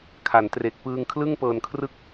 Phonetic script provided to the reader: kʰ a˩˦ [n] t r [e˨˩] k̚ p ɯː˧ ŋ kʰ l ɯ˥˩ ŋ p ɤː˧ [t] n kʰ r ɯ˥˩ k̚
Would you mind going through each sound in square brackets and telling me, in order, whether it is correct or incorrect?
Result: correct, correct, incorrect

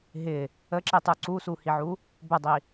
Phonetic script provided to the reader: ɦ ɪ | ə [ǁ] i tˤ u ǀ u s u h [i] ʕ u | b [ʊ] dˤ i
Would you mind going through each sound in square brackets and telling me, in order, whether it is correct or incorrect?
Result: correct, correct, correct

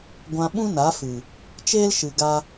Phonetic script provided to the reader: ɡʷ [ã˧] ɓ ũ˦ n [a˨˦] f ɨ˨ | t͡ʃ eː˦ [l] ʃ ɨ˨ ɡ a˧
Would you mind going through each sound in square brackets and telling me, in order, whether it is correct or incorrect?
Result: correct, correct, correct

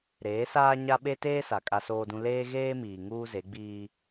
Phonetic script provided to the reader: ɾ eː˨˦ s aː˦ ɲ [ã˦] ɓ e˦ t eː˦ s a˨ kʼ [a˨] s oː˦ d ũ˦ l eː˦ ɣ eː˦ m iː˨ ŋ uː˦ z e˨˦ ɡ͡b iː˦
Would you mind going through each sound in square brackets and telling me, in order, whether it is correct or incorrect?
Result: incorrect, incorrect

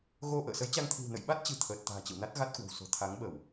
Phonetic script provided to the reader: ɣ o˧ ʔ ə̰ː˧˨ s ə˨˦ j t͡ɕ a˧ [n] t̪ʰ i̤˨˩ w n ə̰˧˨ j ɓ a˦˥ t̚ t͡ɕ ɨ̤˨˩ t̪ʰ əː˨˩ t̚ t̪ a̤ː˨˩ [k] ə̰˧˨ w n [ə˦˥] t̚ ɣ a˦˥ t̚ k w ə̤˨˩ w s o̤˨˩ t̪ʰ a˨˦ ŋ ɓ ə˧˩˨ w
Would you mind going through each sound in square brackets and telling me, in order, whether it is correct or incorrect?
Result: incorrect, incorrect, incorrect

